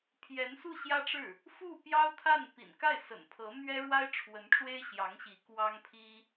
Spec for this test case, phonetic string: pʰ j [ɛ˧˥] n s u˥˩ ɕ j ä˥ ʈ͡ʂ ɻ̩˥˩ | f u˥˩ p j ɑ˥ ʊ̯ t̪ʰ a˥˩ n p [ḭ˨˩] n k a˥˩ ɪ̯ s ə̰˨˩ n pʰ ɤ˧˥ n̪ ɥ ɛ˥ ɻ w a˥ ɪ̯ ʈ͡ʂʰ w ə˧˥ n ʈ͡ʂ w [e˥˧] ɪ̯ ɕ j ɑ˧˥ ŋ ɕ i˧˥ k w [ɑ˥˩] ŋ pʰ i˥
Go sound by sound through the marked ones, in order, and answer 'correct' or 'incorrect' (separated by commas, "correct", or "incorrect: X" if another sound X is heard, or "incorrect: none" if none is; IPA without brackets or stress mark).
correct, correct, incorrect: e˥, incorrect: ɑ˥